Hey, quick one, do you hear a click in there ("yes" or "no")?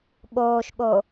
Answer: no